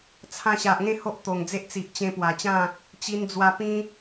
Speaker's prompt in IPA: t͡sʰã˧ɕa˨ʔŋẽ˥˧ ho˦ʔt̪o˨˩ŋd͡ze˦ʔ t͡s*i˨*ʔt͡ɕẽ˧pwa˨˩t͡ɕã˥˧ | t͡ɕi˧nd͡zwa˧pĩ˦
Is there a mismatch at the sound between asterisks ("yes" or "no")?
no